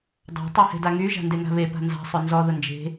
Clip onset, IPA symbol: dˤ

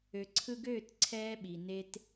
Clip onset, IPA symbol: ø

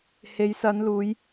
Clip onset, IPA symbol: h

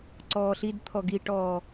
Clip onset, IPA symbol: ǀ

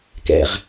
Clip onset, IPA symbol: k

